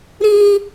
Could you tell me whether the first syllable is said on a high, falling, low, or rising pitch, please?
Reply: high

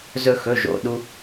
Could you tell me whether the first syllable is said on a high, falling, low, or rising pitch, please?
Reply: high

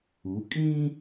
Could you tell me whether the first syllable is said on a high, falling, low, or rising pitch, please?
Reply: rising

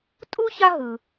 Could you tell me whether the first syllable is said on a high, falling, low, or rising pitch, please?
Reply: high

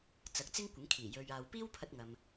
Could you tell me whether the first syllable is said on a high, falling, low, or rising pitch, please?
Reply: rising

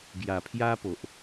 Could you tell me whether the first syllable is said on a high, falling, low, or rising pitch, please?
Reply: low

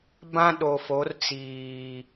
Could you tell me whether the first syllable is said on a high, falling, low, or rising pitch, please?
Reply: high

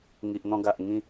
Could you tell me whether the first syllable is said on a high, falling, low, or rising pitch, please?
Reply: low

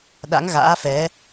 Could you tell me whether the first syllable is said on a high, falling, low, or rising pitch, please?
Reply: rising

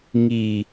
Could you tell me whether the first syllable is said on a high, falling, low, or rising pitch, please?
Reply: low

